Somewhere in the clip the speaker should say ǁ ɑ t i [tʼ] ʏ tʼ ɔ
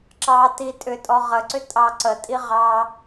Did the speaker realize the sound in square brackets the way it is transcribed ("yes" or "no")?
yes